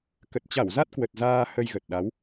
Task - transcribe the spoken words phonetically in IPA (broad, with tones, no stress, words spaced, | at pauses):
kə˨˩t̚t͡ɕa˧˩wza˦˥t̚kwə˨˩t̚ zaː˧ hə˧jɣə˨˩t̚ɗa˨˦w